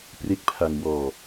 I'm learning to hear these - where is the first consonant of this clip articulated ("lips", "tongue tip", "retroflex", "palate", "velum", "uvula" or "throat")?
lips